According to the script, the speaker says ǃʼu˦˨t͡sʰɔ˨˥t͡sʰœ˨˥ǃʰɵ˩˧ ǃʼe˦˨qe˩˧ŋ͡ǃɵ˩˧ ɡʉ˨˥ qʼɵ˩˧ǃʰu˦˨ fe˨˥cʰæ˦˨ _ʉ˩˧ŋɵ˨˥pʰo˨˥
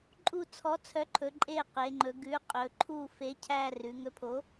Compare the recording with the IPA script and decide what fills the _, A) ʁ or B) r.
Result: B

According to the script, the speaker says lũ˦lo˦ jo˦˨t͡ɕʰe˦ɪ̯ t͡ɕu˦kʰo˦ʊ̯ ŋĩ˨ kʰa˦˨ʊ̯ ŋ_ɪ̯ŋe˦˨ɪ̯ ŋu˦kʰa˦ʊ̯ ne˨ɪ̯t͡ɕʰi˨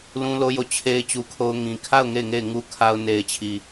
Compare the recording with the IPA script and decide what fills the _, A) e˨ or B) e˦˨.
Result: B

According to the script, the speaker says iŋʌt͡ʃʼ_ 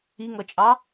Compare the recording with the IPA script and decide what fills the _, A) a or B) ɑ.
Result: B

